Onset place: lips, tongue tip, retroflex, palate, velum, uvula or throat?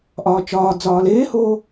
throat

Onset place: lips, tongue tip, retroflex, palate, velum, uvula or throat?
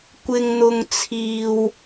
velum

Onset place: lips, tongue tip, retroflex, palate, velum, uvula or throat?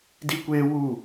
tongue tip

